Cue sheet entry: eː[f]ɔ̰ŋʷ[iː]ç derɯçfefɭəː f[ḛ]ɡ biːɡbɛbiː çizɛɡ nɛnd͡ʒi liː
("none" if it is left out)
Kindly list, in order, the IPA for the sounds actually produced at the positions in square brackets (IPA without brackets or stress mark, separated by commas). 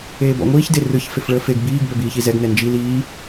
b, iː, e